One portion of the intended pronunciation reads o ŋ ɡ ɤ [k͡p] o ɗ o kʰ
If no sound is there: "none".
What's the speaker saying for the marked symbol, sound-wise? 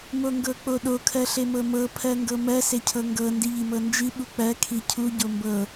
k͡p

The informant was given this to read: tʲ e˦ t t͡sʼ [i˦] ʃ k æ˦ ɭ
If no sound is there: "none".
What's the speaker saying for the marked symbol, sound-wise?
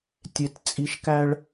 i˦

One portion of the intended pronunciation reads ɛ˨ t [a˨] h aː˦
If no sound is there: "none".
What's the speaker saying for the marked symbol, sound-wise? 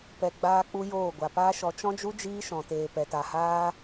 a˨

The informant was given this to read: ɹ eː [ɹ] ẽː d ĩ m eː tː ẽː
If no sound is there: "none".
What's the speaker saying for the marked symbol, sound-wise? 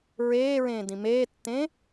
ɹ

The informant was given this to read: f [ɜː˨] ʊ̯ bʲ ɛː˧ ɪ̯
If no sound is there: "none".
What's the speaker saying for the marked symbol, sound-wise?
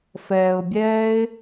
ɛː˨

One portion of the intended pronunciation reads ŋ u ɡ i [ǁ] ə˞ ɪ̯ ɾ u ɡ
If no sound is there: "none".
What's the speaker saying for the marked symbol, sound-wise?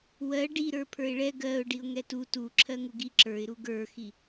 ǁ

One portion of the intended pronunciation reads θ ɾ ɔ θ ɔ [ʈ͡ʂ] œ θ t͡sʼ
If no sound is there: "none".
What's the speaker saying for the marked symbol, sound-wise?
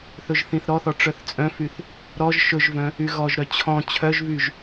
ʈ͡ʂ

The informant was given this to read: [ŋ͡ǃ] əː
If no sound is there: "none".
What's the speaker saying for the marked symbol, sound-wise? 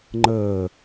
ŋ͡ǃ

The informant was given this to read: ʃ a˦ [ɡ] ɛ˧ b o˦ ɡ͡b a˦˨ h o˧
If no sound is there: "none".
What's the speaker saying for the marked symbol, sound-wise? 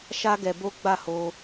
ɡ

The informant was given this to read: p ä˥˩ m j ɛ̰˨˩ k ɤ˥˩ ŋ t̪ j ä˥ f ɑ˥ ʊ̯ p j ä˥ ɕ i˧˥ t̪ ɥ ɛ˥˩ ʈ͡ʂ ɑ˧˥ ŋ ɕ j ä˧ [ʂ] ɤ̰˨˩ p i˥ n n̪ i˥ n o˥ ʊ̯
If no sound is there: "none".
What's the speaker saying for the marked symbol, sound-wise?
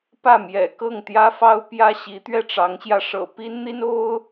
ʂ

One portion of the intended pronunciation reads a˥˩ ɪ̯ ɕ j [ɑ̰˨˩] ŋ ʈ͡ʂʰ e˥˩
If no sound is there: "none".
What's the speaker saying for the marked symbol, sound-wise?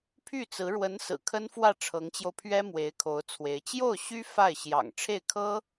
ɑ̰˨˩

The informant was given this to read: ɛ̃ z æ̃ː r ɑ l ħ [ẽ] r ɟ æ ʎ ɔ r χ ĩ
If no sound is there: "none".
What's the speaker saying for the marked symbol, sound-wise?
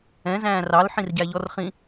ĩ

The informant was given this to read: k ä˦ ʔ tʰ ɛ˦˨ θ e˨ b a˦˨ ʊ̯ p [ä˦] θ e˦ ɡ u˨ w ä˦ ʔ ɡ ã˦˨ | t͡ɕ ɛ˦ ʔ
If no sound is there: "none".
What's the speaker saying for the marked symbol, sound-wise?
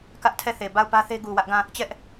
ä˦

